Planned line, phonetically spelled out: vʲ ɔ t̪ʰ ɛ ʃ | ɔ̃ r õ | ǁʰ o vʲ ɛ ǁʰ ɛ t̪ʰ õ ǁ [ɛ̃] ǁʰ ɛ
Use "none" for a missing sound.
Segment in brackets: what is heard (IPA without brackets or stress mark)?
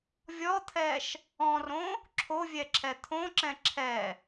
ɛ̃